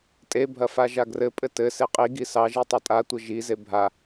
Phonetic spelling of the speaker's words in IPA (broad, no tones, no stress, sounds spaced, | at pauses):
tʼ e bʱ ɐ f a ʒ a ɡ r ɘ pʼ ɘ t ɘ s e qʼ i ɡ i s ɑ ʒ i tˤ a tʼ a tʷ ɘ ʒ i z e bʱ a